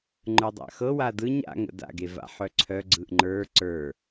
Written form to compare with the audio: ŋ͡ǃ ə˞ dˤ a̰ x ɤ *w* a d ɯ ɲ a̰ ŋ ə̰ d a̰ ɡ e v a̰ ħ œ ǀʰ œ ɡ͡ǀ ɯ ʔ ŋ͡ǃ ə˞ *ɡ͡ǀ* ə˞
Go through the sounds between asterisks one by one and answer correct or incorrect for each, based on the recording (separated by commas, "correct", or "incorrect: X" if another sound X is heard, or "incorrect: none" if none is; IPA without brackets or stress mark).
correct, incorrect: ǀ